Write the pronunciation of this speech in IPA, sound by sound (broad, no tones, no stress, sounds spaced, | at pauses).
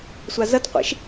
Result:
sʷ a z ɐ t qʷ ḛ ʃ